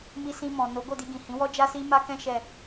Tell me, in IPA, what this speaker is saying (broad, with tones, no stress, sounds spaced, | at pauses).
m i˧ s ĩ˧ m ɔ̃˨ n o˨˦ ɡ o˦˨ d i˧ ɡ ĩ˨ h ĩ˨˦ w ɔ˦ d͡ʒ a˦ s i˦ m a˦ k ɛ̃˦ ʃ ɛ˦˨